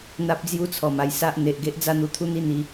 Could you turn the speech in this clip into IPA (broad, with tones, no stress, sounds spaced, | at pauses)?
n̪ a˦ p̚ d͡z j u˦ t͡sʰ ɔ˨˩ m a˧ j s a˦ ʔ n̪ e˨ ʔ ɡ e˦ ʔ d͡z a˥˧ n̪ u˧ t̪ʰ u˦ n̪ i˦ n̪ i˧